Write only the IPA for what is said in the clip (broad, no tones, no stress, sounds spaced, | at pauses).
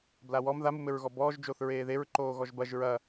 b l a w ɔ m ð a m u m ɘ ɹ ɣ ɔ b ɔː ʒ d͡ʒ o θ ɹ eː ð e ɹ ǃ oː ɣ ɔ ʒ b ɐ ʒ ɹ ɐ